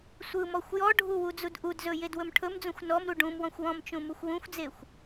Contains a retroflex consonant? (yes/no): yes